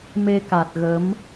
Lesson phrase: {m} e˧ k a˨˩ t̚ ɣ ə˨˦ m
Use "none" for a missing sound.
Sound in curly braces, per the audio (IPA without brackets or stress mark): m